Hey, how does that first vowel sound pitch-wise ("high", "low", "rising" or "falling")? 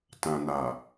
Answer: low